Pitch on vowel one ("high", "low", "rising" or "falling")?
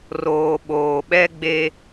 low